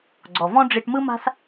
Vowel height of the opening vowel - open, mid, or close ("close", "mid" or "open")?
mid